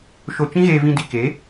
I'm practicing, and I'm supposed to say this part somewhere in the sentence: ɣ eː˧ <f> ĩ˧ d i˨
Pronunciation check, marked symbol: incorrect: v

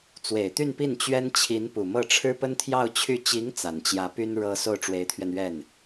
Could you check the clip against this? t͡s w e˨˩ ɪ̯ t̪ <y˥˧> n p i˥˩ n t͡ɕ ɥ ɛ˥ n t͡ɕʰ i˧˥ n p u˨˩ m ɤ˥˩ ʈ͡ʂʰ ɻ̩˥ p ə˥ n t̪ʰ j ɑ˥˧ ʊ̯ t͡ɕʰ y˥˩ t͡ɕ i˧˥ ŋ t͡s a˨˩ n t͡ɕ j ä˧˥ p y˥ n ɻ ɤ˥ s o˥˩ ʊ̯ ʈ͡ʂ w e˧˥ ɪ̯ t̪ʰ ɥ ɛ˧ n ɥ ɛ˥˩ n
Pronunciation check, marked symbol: correct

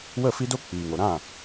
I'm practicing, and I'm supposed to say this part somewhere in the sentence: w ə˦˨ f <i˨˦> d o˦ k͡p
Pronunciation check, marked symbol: incorrect: i˦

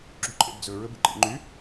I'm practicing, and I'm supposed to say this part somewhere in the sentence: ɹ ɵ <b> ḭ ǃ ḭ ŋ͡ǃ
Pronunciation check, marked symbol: correct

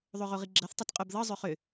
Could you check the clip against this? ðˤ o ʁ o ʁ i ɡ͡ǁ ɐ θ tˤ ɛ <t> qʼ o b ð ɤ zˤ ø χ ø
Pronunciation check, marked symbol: correct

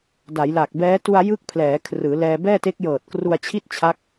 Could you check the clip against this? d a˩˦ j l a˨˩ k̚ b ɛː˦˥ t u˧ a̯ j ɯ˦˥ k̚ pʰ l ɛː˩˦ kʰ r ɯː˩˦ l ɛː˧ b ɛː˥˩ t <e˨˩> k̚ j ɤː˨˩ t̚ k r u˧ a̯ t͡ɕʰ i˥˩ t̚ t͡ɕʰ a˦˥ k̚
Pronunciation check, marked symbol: incorrect: e˦˥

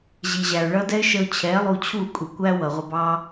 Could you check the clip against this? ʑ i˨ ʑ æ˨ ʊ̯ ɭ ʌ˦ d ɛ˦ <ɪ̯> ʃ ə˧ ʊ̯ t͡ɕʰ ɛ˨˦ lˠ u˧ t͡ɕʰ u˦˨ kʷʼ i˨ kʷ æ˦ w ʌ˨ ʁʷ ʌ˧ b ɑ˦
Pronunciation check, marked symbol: correct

